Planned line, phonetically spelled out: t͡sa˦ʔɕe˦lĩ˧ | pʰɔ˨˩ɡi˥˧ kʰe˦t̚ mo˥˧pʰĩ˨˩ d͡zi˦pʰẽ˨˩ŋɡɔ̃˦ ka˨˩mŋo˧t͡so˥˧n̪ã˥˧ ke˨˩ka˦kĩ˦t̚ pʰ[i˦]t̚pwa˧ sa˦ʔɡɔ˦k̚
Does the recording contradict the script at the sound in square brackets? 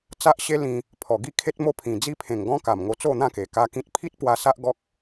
no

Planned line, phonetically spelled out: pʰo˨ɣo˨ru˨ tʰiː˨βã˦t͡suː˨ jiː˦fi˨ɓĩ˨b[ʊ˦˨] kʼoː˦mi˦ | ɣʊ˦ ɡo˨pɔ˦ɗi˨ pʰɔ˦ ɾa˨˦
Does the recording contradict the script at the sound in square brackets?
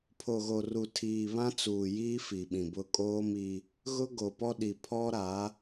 no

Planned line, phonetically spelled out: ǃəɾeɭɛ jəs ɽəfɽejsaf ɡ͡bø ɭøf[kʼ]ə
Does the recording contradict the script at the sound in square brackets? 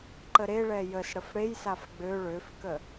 yes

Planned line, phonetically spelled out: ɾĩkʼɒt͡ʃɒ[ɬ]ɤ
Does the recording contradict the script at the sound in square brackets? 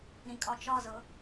yes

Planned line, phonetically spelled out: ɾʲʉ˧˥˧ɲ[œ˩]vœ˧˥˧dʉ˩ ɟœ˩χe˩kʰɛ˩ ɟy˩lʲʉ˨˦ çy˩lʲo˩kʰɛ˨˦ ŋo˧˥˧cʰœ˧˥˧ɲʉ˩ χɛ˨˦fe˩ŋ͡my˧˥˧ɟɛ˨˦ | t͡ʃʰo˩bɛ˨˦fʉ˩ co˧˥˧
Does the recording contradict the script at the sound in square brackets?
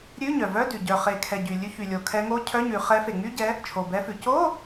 no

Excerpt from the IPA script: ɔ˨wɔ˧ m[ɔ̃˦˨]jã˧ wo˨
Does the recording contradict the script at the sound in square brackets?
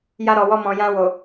yes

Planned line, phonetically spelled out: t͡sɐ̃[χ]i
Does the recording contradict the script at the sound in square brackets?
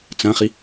no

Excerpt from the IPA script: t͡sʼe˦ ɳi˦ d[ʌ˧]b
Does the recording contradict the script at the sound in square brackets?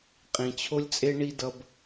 no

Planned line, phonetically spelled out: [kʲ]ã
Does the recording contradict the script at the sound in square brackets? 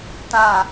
yes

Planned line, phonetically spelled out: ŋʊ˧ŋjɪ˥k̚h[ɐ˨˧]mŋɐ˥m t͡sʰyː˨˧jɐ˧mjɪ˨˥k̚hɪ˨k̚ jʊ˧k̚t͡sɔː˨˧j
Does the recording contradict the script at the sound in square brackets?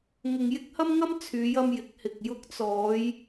yes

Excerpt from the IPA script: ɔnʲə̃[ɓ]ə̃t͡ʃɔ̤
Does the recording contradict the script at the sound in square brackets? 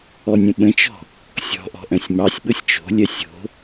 no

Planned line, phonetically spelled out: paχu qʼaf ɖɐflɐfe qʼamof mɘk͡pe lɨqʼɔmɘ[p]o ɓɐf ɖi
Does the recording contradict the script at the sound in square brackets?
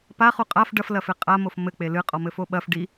yes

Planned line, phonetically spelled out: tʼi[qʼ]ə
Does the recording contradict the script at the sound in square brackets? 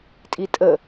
yes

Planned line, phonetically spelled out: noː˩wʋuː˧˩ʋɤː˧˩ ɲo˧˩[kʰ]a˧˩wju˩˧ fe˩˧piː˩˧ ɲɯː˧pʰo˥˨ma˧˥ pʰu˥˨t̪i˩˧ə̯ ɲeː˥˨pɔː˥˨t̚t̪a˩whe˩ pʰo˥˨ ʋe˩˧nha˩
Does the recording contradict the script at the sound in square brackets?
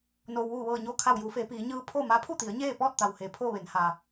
no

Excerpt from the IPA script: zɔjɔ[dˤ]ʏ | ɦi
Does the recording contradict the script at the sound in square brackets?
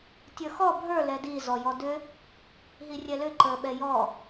yes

